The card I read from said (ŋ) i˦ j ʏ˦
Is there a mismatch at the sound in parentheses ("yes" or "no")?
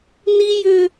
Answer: yes